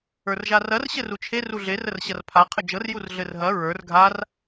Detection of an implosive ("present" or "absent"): absent